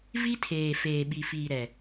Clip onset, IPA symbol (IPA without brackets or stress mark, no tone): v